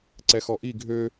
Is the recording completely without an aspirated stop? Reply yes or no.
yes